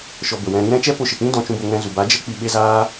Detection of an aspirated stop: absent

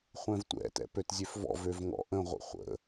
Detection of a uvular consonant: present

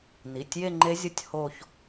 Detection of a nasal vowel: absent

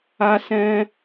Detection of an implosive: absent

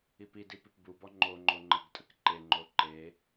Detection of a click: present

